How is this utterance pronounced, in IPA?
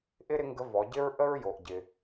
ʔ ɪ˥ ɾ ɪ˧˥ ŋ ɡ ə˧˥ v ɔ˩˧ ɟ ɪ˥ ɹ ʔ ə˥ ɹ j o˩ ʔ ɟ ɪ˩

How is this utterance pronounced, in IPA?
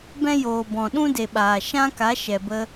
b ɛ̃˦ j oː˨ b ɔ̃˨ ɗ ũ˦ d e˨ ɓ aː˨ ʃ ã˦ k a˨˦ ʃ ɛ˨ b ə˧

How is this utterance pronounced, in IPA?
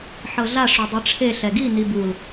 ħ ɤ ɮ a ʂ o dˤ ɯ ʈ͡ʂʰ e ɬ ɛ ɡ i n i b u l

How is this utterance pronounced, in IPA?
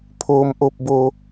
pʰ oː˩ m ʔ o˧˩ p̚ b o˧˩

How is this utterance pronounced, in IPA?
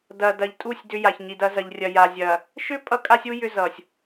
d ɐ˨ d ɐ˨ ʎ tʼ u˦˨ sʲ d ʏ˦ j a˨ ç ɲ i˨ d ɐ˨˦ z ɐ˨ ʎ rʲ ɐ˨ j a˨ zʲ ɐ˨ | ʃ ʏ˦ pʼ ʌ˦ kʼ a˦ sʲ u˦ j ʏ˦ z ʌ˨ sʲ

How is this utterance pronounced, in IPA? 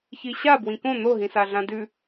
ç i ɕ a b w ĩ k õ n̪ o ɦ ĩ s a ɮ ã d ʉ

